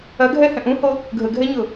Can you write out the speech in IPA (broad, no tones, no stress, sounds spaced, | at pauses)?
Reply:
ɐ ɡʱ ɛ h ɛ̃ ʔ ũ h o | ɡʱ ə ɡʱ ɛ ɲ ʊ